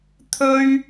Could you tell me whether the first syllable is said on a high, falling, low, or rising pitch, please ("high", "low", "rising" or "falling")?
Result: high